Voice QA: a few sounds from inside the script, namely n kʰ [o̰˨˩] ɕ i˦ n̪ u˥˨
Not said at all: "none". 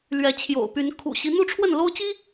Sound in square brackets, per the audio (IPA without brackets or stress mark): ṵ˨˩